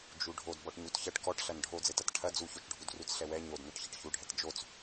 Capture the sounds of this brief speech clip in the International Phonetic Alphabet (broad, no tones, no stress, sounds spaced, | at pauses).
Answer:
d͡ʒ u ɖʱ o d b ɔ ʈ ɲ u t ç ɐ ʈ k ɔ ʈ ɬ ɐ n ɖʱ o d͡z ɘ t ɐ t ʈʰ ɐ d͡z u ç o t͡ʃ ɖʱ u d r u t͡s ɬ ɛ w ɛ ɲ o d n ɐ ʈ ç ɘ ʈ ç u ɖʱ ɛ t d͡ʒ o t͡s